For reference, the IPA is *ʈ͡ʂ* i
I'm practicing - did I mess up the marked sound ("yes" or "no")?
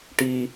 yes